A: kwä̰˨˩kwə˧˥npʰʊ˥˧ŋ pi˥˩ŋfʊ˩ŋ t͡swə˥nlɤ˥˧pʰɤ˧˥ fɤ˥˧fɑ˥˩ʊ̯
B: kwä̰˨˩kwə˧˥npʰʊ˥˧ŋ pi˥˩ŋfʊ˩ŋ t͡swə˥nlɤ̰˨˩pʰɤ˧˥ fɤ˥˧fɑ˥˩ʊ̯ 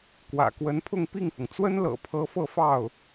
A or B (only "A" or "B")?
B